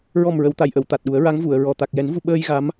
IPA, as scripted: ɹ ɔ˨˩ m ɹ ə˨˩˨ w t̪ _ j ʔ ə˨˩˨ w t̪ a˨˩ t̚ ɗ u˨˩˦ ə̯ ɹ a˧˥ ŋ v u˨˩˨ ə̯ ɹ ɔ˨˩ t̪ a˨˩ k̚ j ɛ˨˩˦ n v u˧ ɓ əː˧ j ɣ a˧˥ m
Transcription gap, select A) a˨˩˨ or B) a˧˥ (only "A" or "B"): A